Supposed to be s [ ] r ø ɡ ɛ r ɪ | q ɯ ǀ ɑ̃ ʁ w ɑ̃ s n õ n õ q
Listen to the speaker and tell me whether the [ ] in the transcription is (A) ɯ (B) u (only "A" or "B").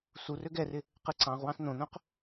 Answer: B